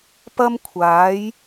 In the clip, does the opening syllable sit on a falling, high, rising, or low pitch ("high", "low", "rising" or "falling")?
high